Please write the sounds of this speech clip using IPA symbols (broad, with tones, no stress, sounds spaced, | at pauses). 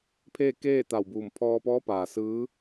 pʰ eː˥˨ k eː˥˨ t̪ a˧˩ w b uː˧˩ m pʰ ɔː˧ p ɔː˧˥ p aː˩ s ɯː˧˥